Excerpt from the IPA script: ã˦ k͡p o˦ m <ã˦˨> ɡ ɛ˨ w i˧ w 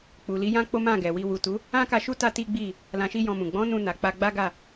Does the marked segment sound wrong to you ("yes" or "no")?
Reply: no